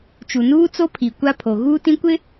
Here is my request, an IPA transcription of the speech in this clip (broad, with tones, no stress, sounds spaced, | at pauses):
t͡ʃ u˨ n uː˦ t͡s o˦ pʰ i˨ kʷ a˦ pʰ o˨ ɣ uː˦ t ĩ˦ kʷ ɪ˦